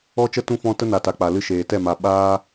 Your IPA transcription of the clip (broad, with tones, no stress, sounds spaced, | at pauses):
ɔ˦ t͡ʃ ə˦ t ũ˦ f ɔ̃˦ t ə˦ n a˨ t a˨ k͡p a˨ l ɨ˧ ʃ eː˨ t ɛ˦˨ m a˨ ɓ aː˦